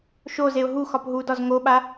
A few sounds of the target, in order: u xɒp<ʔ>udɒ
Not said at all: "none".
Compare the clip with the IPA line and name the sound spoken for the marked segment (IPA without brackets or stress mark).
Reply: ɦ